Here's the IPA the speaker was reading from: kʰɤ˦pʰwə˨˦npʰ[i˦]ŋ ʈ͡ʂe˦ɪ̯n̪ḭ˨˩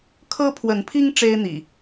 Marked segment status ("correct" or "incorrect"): correct